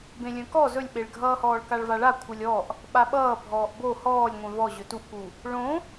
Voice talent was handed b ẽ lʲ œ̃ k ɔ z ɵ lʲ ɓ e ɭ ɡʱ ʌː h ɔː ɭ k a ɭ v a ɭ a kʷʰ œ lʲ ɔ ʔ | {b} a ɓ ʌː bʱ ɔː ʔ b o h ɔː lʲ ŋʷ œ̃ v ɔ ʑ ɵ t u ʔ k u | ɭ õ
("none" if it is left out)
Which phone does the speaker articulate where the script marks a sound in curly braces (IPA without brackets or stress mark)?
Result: ɓ